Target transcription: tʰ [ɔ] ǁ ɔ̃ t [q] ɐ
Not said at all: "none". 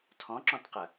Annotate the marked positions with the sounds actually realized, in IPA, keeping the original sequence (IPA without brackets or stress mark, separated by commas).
ɔ̃, q